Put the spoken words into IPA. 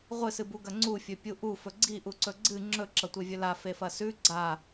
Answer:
ʁʷ ɨ s ɨ b u ɡ ɐ ŋ͡ǀ u fʲ ɵ pʲ u ʔ u f ɵ ɡ͡ǀ i ʔ u ǀ ɵ ɡ͡ǀ ɨ ŋ͡ǁ ɵ ǁ ɐ tʷ e vʲ ɵ l a f e f ɐ s ʉ ɡ͡ǀ a

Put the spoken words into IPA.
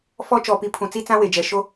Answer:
f ɔ˦ t͡ʃ ɔ˨ p i˨ pʰ ũ˨ t͡s i˦ t͡s ã˦ w e˨ d͡ʒ ɛ˨ ʃ o˦

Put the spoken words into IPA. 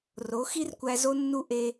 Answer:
r o˨˦ x i˦ r kʷ æ˧ z o˦ nː u˦ ʔ e˧

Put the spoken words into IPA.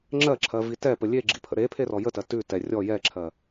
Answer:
ŋ͡ǁ ɜ ǁʰ ɜ v i t ɛ p ə lʲ e ɡ͡ǁ ḭ pʰ ə̰ ɾ e pʰ e r ɔ j ə t ɜ t ʉ t ɛ rʲ ɔ j ɛ ǁʰ ɜ

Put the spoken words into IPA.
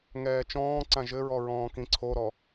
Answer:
ŋ ɛː t͡ʃ ɔ̃ː ǀ ã ʒ ɘ ɹ ɔ ɹ ɔ̃ː k ĩ ǀʰ o ɾ ɔ

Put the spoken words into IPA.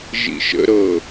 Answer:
ʒ ḭ ʃ ə̰ ɾ ɤ

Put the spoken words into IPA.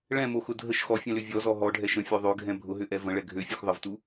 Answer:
ɭ ɛ̃ m o x ʊ dʱ ə ʃ x ɔ fʲ ɛ̃ l ʏ vʲ ɔ z ɔ ɦ ɔ ɖʱ ɛ ʃ ə̃ fʲ ø ðˤ ø ɡʱ ɛ̃ bʱ ʊ ɦ ʏ ʔ ɛ v ə̃ ɭ ɛ ɡʱ ø fʲ ø x ðˤ ə v t u

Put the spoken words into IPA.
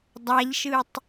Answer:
dˤ a ʎ ʃ ɯ tˤ

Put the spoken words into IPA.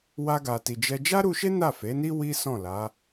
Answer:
w a˧ ɡ a˨ t i˨ d͡ʒ ɛ˧ d͡ʒ a˦ ɾ u˧ ʃ e˦ n a˦˨ f e˨˦ n i˦ w i˦ s ɔ̃˦˨ l a˨˦

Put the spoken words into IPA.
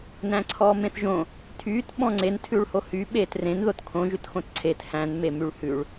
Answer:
n æ̃ ǀʰ ɔː m ẽ θ ʒ õ | tʰ yː t ɓ ɔ̃ ŋ͡ǀ e n tʰ ʉ ɭ h o h y ɓ eː t r ẽ n ð o t kʰ õ ʒ ʉ t x õ t ǀʰ e t h æ̃ n m e m y ɭ h ʉ ɭ

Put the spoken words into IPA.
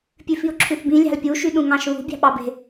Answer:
pʲ ʉ f i ʊ̯ ǁʰ ʉ θ b ĩ lʲ ɑ̤ l pʲ u ʃ y ɗ ũ ŋ ɑ̃ ʃ β ṳ bʲ ɑ̤ ɓ ɑ b e̤

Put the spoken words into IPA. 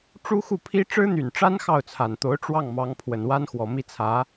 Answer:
ʈ͡ʂ u˥ x u˥˩ pʰ i˥ ʈ͡ʂ ɻ̩˥ n̪ y˨˩ n ʈ͡ʂ a˥ n x ɑ˥˩ ʊ̯ t͡sʰ a˨˩ n t̪ o˧˥ ʊ̯ ʈ͡ʂ w ɑ˥˩ ŋ m ɑ˧˥ ŋ pʰ w ə˨˩ n w a˥ n x w ɔ˨˩ m i˥˩ t͡sʰ ä˧˥

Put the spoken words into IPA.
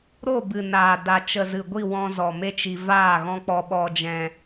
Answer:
ɾ o˦˨ b ɨ˨ n aː˨ d a˨ t͡ʃ ə˨ z ɨ˨ ɡʷ i˦˨ w ɔ̃˧ z ɔ˨ m e˦ t͡ʃ i˧ v aː˦˨ ɣ ɔ̃˦ k͡p ɔ˦ ɓ ɔ˦ d͡ʒ ɛ̃˦

